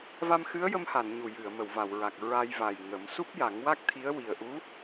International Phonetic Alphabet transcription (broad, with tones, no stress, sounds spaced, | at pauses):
v a˧ m x ɨ˧˥ ə̯ j ə˧ m h a˨˩˨ n ɲ u˨˩ j ɨ˨˩˨ ə̯ m ə˨˩˨ w v a˨˩˨ w ɹ a˨˩ k̚ ɹ a˧ j v a˨˩ j ŋ ə˨˩˦ m s u˦˥ p̚ j a˨˩˦ ŋ w a˦˥ k̚ t̪ʰ i˧˥ ə̯ w i˨˩ ə̯ ʔ u˧˥